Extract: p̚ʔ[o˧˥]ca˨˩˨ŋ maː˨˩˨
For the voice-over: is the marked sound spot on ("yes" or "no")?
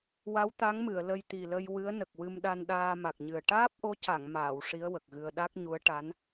yes